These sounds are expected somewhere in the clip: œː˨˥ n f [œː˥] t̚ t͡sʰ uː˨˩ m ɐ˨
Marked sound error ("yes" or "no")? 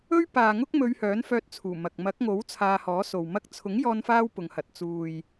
yes